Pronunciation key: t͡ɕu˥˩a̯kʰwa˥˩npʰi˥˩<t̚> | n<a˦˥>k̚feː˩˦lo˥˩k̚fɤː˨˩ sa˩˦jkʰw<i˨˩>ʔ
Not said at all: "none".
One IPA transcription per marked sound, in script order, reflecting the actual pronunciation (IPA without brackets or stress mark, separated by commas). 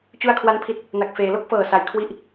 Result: t̚, a˨˩, i˦˥